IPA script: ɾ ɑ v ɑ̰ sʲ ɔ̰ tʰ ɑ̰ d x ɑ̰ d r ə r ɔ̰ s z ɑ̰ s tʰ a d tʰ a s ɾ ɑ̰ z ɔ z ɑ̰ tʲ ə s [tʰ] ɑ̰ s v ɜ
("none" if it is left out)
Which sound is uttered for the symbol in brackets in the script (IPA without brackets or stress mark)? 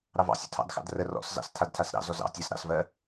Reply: ɾ